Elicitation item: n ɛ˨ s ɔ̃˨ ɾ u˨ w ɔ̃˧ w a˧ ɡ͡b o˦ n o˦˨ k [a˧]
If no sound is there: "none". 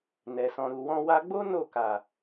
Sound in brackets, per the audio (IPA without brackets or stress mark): a˨